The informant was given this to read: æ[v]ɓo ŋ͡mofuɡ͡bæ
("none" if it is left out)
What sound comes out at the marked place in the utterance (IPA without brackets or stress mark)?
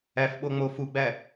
f